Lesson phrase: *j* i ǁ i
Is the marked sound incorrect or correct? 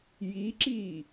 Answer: correct